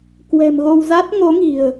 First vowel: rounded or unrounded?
unrounded